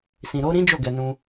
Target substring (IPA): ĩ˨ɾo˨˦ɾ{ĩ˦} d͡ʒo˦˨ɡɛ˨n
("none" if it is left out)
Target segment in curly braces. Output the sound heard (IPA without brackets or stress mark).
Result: ĩ˦